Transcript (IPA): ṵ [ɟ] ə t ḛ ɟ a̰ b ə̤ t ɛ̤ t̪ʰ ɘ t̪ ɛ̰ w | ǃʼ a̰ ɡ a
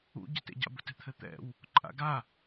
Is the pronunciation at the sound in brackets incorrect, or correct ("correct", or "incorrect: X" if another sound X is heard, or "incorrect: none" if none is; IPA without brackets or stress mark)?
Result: correct